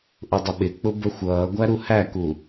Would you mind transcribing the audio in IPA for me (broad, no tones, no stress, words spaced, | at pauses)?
ʔʊdˤəɓɪk͡pʊ bəxʷʌːɡʷæ ɾuhæku